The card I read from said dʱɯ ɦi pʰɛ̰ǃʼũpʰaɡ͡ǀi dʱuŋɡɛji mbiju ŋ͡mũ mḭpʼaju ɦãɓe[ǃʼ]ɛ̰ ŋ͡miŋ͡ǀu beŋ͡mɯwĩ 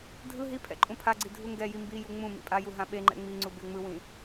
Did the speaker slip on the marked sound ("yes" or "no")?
yes